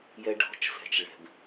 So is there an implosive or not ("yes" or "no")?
no